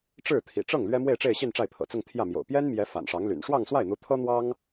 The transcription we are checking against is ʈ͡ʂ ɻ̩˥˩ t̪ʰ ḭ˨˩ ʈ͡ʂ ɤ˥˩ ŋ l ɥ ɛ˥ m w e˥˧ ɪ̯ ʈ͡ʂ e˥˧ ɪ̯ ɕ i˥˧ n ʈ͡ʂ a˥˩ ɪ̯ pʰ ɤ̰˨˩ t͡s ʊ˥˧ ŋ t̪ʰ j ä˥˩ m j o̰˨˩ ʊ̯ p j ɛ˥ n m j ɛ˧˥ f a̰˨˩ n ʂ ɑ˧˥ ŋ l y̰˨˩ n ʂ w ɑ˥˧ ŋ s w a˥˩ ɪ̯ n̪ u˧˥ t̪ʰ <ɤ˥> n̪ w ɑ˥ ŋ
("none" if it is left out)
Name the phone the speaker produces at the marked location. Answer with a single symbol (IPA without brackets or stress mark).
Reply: ɤ˥